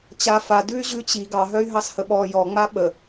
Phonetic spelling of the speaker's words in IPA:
t͡ɕ a f a d ʉ y̯ ʑ ʉ t͡ɕ i ɡ ɑ ɦ œ y̯ ɦ ɑ s h ə ɓ ɔ j ɔ ŋ͡m a ɓ ə

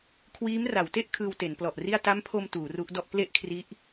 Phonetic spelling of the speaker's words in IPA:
kʰ w iː˦˥ m r a˩˦ w t e˥˩ ʔ kʰ ɯː˧ w t e˩˦ n p l ɔ˨˩ ʔ r i˥˩ a̯ t a˦˥ m pʰ o˧ m t uː˩˦ r u˦˥ ʔ d ɔ˥˩ ʔ p l e˥˩ ʔ kʰ r i˦˥ ʔ

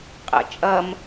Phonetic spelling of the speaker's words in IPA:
qʼ ɛ̰ t͡ʃʼ ɐ m

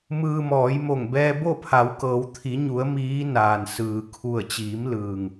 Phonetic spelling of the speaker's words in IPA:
m ɯː˧ m ɔː˩˧ j m o˧˩ ŋ b ɛː˧ b o˥˨ pʰ a˩˧ w k ɤː˩˧ w t̪ʰ i˩˧ ɲ u˩˧ ə̯ m iː˧˥ n aː˩ n s ɯː˩ kʰ u˧˩ ə̯ t͡ɕ iː˩˧ m l ɯː˩ ŋ

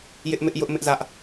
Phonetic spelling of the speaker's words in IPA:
j ɪ˦ ʔ m ɪ˦ ʔ j ʊ˦ ʔ m ɪ˦ ʔ z ä˦ ʔ

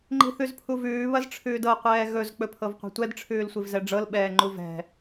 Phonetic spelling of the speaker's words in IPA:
ŋ͡ǃ i̤ θ ʉ z pʰ u v ʉː β ɐ z ʈ͡ʂʰ ʉː d ɤ qʷ ɛː ɣ ɵ z k͡p ɵ pʰ ɤ v qʷ ɛ̤ tʷ ɛ d ʈ͡ʂʰ ʉː l sʷ i v z ɛ ɖ͡ʐ ɤ l ɓ ɛː ŋ͡ǃ u v ɛ̤

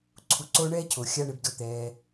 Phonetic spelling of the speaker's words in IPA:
ǀʰ u˨ ǀ oː˧ ɳ ɛː˦ cʰ o˨ xʲ a˦ ɳ ɪ˧ b d ʊ˦˨ t̪ ɛː˧

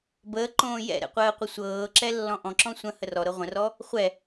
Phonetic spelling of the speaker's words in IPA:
b əː ǃ õː j ɛ̰ ɾ ɛ̰ qʷ əː qʷ ə sʷ ɤː ǁ ɛ lː ɔ̃ ʔ ɔ̃ ǁ ɔ̃ sʷ ə̃ h ə r ɔ ɾ ɤ ʁʷ ə̃ r ɔ | χʷ ɛ

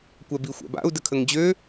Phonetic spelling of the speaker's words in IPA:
kʷ ɛ b i xʷ ɛ̰ b a̰ u̯ d ə kʰ ə ŋ d͡ʑ ø

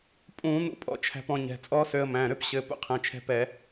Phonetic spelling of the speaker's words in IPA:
pʼ ũ˧˩˧ n̪ ṵ˧ pʼ ɔ̰˧ t͡ʃʰ æ̤˧ p ɔ̃˧ ɲ ɛ̤˩˧˩ t͡sʼ ɔ˦˥ s ø˧ ə̯ m æ̃˩˧˩ ɾ ø˦˥ p ɕ ɘ˩˧˩ p ṵ˧ qʰ ɛ̃˩˧˩ t͡ʃʰ ɛ̤˧ p ɛ˧˩˧

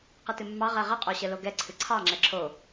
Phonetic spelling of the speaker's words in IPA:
q ɨ t ɨ mː ɑ ʁ ɛ ʁ ə qʼ o ɕ ə l o ɡ ɛ ǀʰ ɨ ǀʰ ɑ ŋ͡ǁ ɛ ǁʰ o

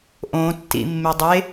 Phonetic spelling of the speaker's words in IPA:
ʔ õ tː ḭ mː e dˤ e

